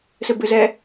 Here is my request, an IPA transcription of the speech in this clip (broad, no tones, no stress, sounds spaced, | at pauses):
s ɘ b ɘ z ɛ